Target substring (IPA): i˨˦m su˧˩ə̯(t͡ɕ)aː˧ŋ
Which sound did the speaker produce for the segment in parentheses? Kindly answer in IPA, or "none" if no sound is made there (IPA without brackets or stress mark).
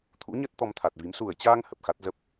t͡ɕ